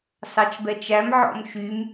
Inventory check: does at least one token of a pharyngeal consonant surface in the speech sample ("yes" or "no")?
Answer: yes